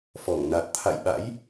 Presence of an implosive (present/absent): present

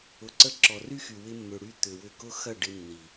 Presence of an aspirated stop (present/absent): absent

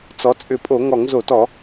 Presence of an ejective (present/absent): present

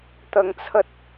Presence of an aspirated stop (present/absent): present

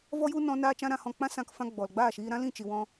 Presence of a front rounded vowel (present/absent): absent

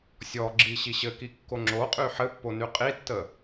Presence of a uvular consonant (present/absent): present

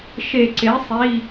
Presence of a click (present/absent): present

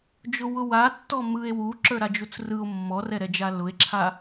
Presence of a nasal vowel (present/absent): absent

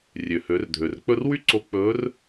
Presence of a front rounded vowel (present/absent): present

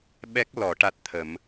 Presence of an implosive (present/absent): present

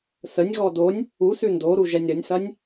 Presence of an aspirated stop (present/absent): absent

